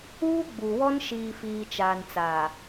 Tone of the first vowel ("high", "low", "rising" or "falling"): high